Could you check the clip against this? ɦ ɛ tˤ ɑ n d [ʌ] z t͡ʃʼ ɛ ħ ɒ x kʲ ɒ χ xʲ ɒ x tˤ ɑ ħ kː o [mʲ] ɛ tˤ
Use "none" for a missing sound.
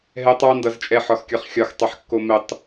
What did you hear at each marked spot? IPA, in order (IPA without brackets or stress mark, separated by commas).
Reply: ʌ, m